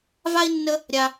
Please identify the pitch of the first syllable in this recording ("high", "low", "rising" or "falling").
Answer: high